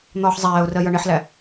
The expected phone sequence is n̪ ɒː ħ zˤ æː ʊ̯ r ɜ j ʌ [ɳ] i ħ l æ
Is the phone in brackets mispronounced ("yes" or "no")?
no